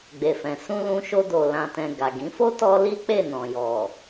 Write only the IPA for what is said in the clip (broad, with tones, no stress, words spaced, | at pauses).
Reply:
ɡ͡be˨fɛ̃˨ sũ˧ lũ˧ʃo˧do˨ lã˨tɛ̃˨ ɡa˨ɡĩ˨˦ fo˦tɔ˧ li˦k͡pe˦˨nɔ̃˨jɔ˨